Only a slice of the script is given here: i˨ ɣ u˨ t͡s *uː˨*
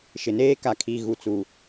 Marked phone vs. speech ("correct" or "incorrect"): incorrect